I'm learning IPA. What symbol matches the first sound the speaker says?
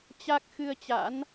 t͡ɕ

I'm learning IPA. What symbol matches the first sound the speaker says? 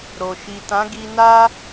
ɾ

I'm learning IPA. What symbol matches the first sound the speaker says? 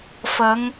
f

